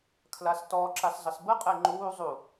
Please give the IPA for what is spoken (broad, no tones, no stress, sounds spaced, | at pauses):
kʰ l a s t ɔ ǁ a s zˤ ə s b ə qʼ ɛ ŋ͡ǃ uː zˤ u